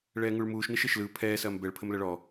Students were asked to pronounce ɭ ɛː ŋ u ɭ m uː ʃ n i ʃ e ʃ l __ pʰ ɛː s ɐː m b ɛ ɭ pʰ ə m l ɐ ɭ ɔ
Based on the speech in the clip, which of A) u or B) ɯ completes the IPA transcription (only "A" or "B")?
B